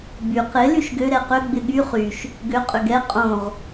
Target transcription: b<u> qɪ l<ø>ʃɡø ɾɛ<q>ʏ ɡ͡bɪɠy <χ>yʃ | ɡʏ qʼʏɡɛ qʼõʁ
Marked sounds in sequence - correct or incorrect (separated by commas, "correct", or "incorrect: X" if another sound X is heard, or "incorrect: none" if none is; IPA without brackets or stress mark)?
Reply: incorrect: y, incorrect: y, correct, correct